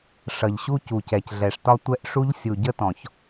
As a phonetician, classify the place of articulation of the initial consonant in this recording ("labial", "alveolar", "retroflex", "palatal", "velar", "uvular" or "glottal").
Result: retroflex